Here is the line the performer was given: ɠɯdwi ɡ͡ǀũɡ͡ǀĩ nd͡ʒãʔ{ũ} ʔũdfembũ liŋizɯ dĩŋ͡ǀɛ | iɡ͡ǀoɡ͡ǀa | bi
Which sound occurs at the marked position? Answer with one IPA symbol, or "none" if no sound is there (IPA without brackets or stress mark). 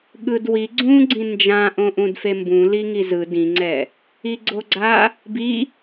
õ